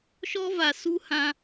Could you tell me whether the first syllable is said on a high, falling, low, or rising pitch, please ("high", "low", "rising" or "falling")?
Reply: high